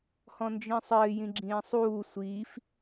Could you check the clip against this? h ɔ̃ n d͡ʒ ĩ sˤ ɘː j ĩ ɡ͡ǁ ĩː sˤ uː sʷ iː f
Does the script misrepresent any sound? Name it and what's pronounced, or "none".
none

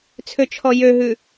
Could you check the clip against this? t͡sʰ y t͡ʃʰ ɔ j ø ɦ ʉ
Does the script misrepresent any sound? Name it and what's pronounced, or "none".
y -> ø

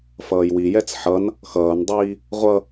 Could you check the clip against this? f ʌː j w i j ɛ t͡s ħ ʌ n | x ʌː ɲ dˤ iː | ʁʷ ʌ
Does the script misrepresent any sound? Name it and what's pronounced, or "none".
ɲ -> n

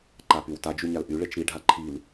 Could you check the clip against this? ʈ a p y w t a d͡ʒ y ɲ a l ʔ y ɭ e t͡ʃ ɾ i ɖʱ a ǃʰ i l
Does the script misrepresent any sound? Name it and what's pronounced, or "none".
ʈ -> ǃ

